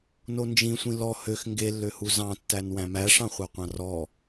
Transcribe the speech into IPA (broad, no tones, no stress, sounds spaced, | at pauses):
n o n d͡ʒ ĩ sʷ ĩ l ɔ h ø x ŋ ɡ e lː ø h u z ɑ̃ tː æ n w æ̃ m æ ʂ ɑ̃ χʷ ɑ qʷ ɑ̃ r ɔ